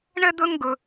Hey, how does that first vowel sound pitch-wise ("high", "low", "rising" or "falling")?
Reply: high